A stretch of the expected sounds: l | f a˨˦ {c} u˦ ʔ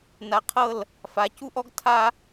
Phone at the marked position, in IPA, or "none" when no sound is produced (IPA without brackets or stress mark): c